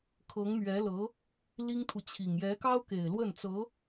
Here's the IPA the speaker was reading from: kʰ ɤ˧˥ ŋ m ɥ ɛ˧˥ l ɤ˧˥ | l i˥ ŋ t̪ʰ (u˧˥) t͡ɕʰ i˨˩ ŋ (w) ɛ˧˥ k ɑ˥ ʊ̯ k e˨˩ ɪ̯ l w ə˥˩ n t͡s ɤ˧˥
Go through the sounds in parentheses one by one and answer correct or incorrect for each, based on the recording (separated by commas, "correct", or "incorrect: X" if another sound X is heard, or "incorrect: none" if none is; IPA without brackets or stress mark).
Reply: incorrect: u˨, incorrect: j